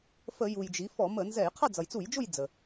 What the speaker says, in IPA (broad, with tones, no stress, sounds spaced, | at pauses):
f ə˧˩˧ j u˩ j d͡ʒ i˩˧ f ɔ˧˩˧ m ə˧˩˧ n z ɛ˧˩˧ j qʰ ʌ˦˨ d͡z ʌ˩ j t͡s u˧˩˧ j d͡ʒ ʊ˦˨ j d͡z ə˩